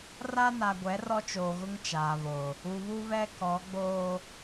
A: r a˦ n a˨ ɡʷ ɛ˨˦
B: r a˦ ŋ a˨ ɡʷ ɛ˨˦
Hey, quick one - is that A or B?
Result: A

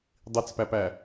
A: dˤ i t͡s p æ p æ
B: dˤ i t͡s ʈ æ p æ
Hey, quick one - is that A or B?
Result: A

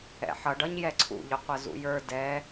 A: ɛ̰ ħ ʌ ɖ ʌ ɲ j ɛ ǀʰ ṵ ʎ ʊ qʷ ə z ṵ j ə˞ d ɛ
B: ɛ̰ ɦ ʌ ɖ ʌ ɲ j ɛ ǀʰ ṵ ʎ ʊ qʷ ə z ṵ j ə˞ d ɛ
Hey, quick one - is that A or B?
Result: A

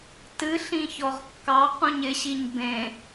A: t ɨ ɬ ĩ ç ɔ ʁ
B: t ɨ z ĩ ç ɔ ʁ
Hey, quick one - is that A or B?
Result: A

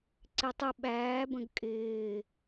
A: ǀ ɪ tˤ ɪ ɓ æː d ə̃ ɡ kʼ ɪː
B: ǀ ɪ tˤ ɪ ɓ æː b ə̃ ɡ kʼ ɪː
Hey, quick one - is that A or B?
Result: B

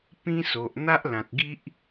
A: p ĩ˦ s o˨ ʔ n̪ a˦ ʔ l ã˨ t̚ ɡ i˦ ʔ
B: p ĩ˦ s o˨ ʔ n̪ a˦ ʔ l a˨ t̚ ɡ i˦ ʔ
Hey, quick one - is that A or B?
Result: A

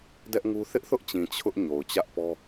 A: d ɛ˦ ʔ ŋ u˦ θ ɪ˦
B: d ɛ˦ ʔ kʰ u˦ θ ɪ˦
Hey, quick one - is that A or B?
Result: A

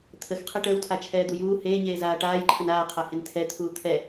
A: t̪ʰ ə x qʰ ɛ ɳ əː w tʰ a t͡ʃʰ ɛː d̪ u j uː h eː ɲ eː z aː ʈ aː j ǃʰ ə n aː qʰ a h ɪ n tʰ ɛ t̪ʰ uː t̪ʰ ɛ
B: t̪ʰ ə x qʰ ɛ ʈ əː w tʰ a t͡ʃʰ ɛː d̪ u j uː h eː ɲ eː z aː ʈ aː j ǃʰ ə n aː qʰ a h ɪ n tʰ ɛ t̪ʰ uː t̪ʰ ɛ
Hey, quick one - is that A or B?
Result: B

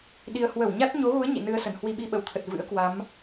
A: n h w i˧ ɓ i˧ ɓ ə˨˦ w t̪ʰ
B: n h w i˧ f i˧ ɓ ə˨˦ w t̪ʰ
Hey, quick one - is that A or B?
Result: A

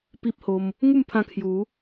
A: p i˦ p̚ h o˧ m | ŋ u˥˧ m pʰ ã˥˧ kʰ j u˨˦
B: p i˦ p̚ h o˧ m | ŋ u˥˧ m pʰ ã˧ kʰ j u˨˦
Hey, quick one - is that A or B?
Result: B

